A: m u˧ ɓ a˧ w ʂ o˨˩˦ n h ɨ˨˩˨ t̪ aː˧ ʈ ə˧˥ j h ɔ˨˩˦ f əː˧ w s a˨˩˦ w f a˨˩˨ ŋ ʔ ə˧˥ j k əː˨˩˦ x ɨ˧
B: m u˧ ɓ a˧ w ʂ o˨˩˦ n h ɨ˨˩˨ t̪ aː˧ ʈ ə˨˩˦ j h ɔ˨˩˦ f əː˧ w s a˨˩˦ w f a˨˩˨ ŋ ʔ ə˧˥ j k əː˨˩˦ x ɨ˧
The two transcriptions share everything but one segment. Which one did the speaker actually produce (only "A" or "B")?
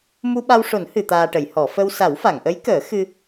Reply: B